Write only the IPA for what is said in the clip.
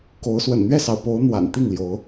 ko˨˦ʊ̯swə̰˨˩n n̪ɥɛ˥˨sɑ˩ʊ̯po˨˦ʊ̯ n̪wa̰˨˩n t̪i˥˨ŋ ljo˨˦ʊ̯

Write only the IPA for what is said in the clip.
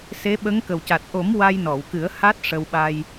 se˧˥ɓə˧˥ŋ kə˨˩wca˨˩t̚ ʔo˨˩˦m wa˧jnɔ˨˩˨wkɨ˨˩˦ə̯ ha˦˥t̚ʂə˧w ɓa˧j

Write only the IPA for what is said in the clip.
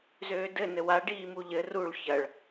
zøːdɘ nɘwa ɖiːmuʎɘ ruɭ çɐɭ

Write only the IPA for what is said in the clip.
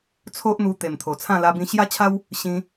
t͡sʰo˦ʔn̪u˧ t̪e˨˩mt̪ʰo˨˩t͡sʰã˥˧ la˧bĩ˧ɕja˦t͡ɕʰa˦w | ɕĩ˧

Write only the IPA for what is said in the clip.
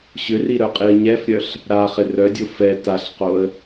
ɕʏri ɾœqʼiə̯ɲɛfɾʲœɬ | ɾaχɪ rœdʲʊ fɛ taɬqoə̯

